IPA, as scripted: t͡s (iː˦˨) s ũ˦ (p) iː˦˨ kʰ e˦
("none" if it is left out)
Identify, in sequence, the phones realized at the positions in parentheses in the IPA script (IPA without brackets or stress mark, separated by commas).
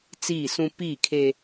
iː˦˨, p